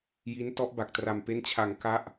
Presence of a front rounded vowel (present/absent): absent